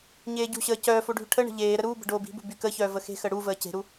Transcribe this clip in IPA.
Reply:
ɲ eː ɟ ṳ ɕ əː c œː f o ɖʱ y ʈʰ ə ɳ ə̤ ʎ eː ɾ ə ɾ uː b ə̤ ɖ oː b i̤ b ṳ b y k ə ç œː v ə x e̤ x ə ɽ u v əː c e̤ ɾ u

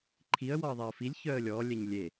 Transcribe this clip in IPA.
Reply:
ǃʰ i ə̯ w ɔ ə̯ ðˤ e ə̯ f i lʲ ç œ ə̯ lʲ ɔ lʲ ɛ ɲ lʲ e

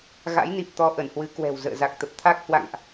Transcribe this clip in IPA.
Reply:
ɣ a̰˧˥ j n i˨˩ p̚ t̪ ɔ˨˦ ʔ ə˧˩ n h w ɨ˨˦ k w ɛ̤˨˩ w z ə̰ː˧˨ z a˨˩ k̚ t̪ ə˨˩ p̚ t̪ʰ a˦˥ k̚ h w a̰˧˨ ŋ ʔ

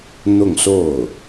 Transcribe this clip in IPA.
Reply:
n̪ ʊ˥˧ ŋ s o˥˩ ʊ̯

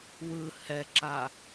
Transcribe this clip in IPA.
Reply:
w ɯ h ɛ ǁ a

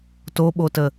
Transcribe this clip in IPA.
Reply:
t o ɓ o t ə

